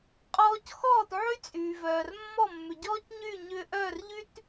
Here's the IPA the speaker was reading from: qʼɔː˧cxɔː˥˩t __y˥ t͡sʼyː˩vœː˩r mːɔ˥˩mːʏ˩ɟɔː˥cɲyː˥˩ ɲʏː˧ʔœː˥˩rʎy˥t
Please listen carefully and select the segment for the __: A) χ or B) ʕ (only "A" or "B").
B